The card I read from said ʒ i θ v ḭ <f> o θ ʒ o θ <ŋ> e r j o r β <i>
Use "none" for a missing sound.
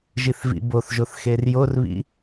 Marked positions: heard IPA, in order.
b, x, ḭ

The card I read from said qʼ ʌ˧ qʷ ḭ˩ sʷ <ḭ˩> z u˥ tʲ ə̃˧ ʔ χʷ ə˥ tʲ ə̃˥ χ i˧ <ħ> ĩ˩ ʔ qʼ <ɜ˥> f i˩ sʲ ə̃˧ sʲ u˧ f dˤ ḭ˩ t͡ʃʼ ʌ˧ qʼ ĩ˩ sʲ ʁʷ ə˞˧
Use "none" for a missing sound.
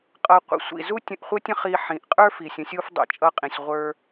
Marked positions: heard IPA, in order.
ḭ˩, ħ, ə˞˥

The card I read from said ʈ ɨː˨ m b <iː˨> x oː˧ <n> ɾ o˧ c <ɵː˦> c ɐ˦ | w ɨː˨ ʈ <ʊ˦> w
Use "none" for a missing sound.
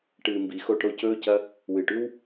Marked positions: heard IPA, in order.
i˨, ʈ, ɵː˦, ʉ˦

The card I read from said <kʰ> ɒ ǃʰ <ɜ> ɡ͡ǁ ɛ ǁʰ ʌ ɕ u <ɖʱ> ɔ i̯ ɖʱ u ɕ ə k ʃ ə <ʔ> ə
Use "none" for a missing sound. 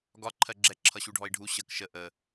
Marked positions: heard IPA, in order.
ɡ, ɜ, ɖʱ, ʔ

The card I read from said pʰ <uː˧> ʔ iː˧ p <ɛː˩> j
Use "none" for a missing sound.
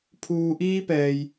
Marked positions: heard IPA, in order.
uː˩, ɛː˩

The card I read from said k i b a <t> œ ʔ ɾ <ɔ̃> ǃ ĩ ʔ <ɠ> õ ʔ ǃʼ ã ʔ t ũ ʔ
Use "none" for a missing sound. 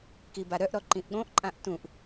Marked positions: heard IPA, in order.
ɾ, ɔ, ɠ

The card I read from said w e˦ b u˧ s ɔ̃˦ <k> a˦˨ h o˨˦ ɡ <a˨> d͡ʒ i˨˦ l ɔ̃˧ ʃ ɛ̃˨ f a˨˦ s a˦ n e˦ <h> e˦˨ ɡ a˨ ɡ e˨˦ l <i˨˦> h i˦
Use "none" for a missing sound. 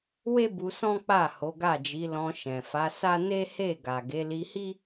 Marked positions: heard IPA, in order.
k͡p, a˦˨, h, i˧

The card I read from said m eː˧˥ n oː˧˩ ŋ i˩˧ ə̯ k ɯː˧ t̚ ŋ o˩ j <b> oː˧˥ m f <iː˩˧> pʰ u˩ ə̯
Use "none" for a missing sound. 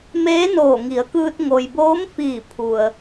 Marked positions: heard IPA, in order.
b, iː˧˩

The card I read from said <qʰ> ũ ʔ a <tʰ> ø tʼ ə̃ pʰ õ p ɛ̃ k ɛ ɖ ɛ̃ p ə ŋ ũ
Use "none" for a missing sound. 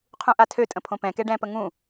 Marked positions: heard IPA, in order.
qʰ, tʰ

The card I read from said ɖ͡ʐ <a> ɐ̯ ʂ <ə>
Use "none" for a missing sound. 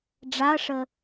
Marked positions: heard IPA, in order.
a, ə

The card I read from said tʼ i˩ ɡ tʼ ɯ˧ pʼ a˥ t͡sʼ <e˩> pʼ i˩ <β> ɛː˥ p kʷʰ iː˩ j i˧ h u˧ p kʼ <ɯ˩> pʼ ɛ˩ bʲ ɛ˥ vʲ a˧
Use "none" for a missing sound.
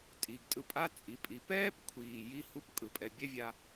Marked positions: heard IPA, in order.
i˩, p, ɯ˩

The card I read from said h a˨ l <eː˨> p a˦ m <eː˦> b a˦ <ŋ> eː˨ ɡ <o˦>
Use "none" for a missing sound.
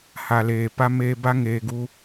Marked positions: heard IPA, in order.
eː˨, eː˦, ŋ, u˦

